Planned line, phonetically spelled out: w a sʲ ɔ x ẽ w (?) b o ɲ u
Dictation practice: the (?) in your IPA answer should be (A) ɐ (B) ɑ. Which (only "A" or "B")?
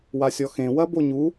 A